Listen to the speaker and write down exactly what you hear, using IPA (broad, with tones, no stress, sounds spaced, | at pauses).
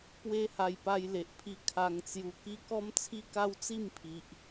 p w e˦ h a˧ j p a˧ j l e˨ ʔ pʰ i˧ kʰ a˧ ŋ t͡s j u˧ k i˦ k ɔ˦ m t͡sʰ i˦ k a˦ w t͡s i˥˧ m pʰ i˨ ʔ